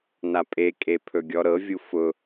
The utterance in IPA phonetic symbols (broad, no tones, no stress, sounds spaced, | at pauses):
n a pʼ e kʼ e pʰ ɵ ɡʲ ɔ ɾ ɤ vʲ u f ʊ